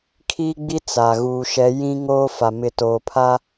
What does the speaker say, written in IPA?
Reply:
kʰiː˦ɡ͡bi˦ t͡sa˨ ɣuː˨ʃɛ˨˦ jĩ˦ ŋoː˦fa˨ mɪ˨toː˨pʰa˦

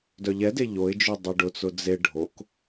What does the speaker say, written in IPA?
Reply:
dœʎɛde ʎoɪ̯d͡ʒy dˤeɖʊt͡sʊ d͡ze ɖʱok

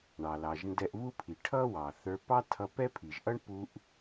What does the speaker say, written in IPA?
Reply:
ɳɑ˩lɑ˩ʒ ndɛ˧ʔβu˥pʰi˩ ʈʰʌ˥ wɑ˩θə˞˧pɑ˥ tʰʌ˧pɛ˥pʰi˩ʒ ʔʌ˥ɳpu˧ʔ

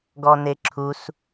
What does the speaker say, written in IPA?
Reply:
ɡɔneǁʰus

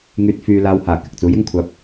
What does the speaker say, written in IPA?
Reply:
ŋyː˨t̚fyː˨ laː˨whaː˨˩ kɪ˨k̚t͡suː˨˥jɪ˥ŋkʷʰaː˧p̚

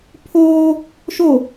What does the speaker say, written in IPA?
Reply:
pʰoː | ʃo

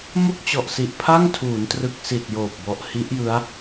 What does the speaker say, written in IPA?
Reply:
mo˥˩k̚t͡ɕɔ˨˩ʔsi˨˩ʔ pʰa˥˩ŋtʰuː˩˦ntrɯ˨˩k̚ si˨˩t̚ joː˨˩p̚bɔ˨˩ʔ hi˦˥ʔjɯ˦˥a̯

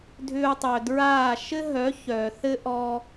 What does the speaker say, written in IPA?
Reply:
dʱʏː˧u̯tˤœ˨dɹaː˦˨ ʃɘ˦ɦœ˨˦ çœː˨θɘ˦ ʔɔː˧

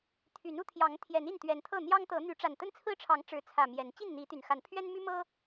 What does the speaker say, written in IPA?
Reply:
t̪ʰy˨˦nu˨˦t̪ʰjɑ˨˦ŋt̪ʰjɛ˨˦n i˥˨nt̪ɥɛ˨˦nt̪ʰɤ˥˨ n̪jɑ˦ŋt̪ɤ˨˦ n̪y˨˦ ʈ͡ʂa˨˩nt̪ə˦nt͡sʰɹ̩˦ʈ͡ʂʰɑ˨˦ŋ ʈ͡ʂɻ̩˨˦t͡sʰä˨˩ mjɛ˨˦n t͡ɕi˥˨nn̪i˨˦t̪y˨˩nxa˨˦n pʰɥɛ˦nmy˦mɤ˦

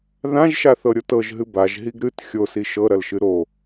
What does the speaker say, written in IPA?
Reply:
ðãʒʃaθɤɾʲot ɤʒɦɨ baʒɦiɡ ɾɨt xʲosi ʃɤɾɐlʃɨ ɾo

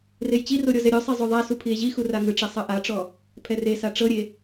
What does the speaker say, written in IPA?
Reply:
rejt͡ɕiro ɾʲɔzɛɾʲosˤi zˤoðˤasu pʰie̯ʑixu raŋɯʈ͡ʂe sˤɤʔaʈ͡ʂɔ | pʰɛresa ʈ͡ʂɤɾʲe

